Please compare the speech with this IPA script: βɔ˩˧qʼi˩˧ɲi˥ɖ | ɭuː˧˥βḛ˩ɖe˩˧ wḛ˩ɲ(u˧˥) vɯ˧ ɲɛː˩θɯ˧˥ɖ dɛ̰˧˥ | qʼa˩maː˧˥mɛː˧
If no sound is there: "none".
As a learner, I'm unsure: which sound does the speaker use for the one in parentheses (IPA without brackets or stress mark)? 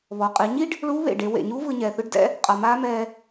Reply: u˧˥